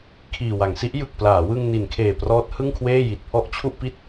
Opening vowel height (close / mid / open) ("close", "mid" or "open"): close